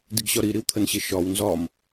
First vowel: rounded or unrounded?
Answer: unrounded